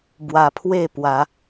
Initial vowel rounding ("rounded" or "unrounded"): unrounded